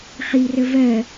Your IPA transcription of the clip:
χirə vɜ

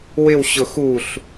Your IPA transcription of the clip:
wɪwɕʊ xuɬ

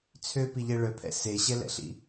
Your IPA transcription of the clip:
t͡sʰøpiʎɛ ɭœpʰɛ̰ seɕɛlɛ̰ɬḭ

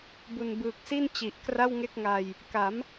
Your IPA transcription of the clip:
bu˨˩nbɯː˨˩k̚si˥˩n t͡ɕi˨˩ʔkra˥˩wŋe˥˩k̚ŋa˧j | ka˩˦m

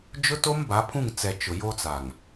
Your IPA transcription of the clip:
d͡ʒʊ˦to˦m ba˨˦pʰũ˦˨ŋt͡sɛ˨ t͡ʃʊ˨jo˦t͡sa˨ŋ

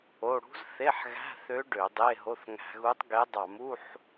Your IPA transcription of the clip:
o˧˥˧ ɽṳ˧˥z θe˧˥˧ħɣæ̤˧˥˧ θø˧˥ ɖø˧˩˧dˤe˧˥˧ɦo˧˥˧θ ŋæ̤˧˩˧ɣu˧˥tˤɡe˧˥ dˤɑ˧˩˧mu˧˥˧ħ

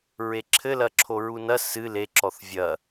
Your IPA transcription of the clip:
ɹeǁʰɘlɐ ǁʰoɹunɐ sɨ leǁɔθ vʲɐ

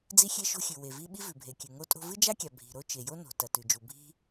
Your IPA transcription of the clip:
d͡zi˥xʲe˥ʃo̤˥xʲʉ˩ we˩vi˥ ɓi˥vʉ˩bʱe˩kʲʉ˩ ŋo˥tʼo̤˥ vɨ˥d͡ʒa˥kʲa˩ bʱi̤˩ɾo˥ t͡ʃe˩jo˥ no̤˩ tɐ˩tʉ˩d͡ʒu˩ bʱi̤˥

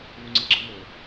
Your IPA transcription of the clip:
βuŋ͡ǀiɡ͡ǁɯmo

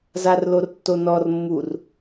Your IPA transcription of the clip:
zarlortːonɔr mːur

